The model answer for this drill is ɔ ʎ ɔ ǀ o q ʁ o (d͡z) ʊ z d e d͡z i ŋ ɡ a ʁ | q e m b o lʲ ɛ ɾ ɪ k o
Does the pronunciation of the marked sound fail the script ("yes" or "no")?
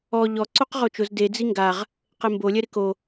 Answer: yes